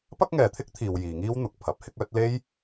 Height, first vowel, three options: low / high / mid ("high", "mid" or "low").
low